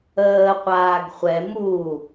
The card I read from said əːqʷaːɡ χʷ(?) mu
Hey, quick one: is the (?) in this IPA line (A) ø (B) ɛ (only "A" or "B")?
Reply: B